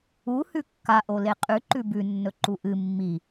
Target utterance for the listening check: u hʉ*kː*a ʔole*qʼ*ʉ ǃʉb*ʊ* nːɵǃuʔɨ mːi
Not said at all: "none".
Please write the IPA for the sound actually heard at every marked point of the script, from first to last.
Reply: kː, qʼ, ʉ

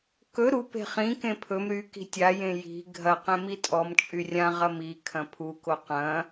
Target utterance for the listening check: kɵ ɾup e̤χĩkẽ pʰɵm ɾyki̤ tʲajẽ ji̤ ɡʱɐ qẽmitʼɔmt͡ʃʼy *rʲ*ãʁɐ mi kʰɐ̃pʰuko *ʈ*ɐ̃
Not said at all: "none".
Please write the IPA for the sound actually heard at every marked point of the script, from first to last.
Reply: rʲ, q

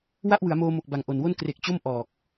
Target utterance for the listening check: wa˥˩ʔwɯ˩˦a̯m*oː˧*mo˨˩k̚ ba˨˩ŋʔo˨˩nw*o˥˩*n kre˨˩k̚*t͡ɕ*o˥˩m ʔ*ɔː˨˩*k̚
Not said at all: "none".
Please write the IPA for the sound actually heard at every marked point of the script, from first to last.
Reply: oː˧, o˥˩, t͡ɕ, ɔː˨˩

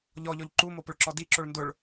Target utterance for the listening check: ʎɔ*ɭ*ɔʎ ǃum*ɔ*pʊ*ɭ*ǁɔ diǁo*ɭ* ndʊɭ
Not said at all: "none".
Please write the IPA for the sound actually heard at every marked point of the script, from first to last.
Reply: ʎ, o, ɭ, ɭ

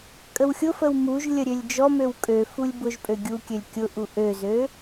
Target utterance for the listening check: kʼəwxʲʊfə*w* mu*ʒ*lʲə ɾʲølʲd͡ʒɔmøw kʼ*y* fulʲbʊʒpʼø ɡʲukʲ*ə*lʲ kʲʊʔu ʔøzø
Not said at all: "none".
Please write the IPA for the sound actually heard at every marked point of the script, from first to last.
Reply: w, ʒ, ø, ø

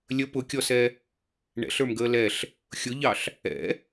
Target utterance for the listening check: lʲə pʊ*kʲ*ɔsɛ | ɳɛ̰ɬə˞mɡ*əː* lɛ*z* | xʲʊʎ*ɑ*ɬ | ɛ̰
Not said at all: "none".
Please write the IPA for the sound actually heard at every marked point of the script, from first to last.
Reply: kʲ, əː, ɬ, ɑ

